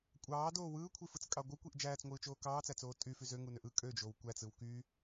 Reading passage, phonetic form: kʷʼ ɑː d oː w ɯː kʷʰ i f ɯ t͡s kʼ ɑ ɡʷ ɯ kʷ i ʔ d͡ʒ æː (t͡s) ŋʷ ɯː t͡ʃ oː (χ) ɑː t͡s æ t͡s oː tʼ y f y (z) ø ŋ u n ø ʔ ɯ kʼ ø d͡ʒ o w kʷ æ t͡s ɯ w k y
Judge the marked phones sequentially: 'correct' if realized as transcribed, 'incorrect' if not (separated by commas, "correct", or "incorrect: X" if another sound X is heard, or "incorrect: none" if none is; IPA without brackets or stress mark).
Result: correct, incorrect: k, correct